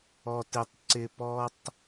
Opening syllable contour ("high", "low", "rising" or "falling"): high